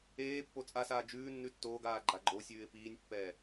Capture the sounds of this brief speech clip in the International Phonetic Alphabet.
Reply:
eː pː o t͡sʼ a s aː d͡ʒ ʉː nː ʉ tː oː ɡ aː ɡ͡ǃ a ɡ͡ǃ o sʲ ʉː ɪ̯ p iː nʲ pː ɛː

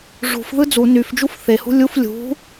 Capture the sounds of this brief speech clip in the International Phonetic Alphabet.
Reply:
ʐ ṳ f ð ɯ d͡z u n y f d͡ʒ u f θ e h ṳ lʲ u f lʲ ṳ

